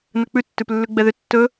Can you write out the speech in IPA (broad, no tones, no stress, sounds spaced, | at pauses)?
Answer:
n ɵ k͡p ʉ tː ʉ p lː ʉ ɡ͡b ɛ ð ʏ tː ɵ